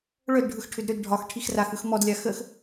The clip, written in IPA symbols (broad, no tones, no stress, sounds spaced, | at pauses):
ɭ œ d ɖʱ ɯ x ʈʰ ʏ d ɾ ʏ d ɖʱ ɒ x ʈʰ i x r a x ɯ x m ɔ d lʲ a x ə x